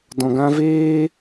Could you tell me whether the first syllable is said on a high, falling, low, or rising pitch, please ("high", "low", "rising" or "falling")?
low